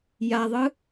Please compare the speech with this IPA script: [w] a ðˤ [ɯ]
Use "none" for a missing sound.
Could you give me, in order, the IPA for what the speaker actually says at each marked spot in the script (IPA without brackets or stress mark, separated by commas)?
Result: j, ɯ